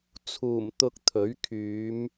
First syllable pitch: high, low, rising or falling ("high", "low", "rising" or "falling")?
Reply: low